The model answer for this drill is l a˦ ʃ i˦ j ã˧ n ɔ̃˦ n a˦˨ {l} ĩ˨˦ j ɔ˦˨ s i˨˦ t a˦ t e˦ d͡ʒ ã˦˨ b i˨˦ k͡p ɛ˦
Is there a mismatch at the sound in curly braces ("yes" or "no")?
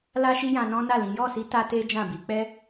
no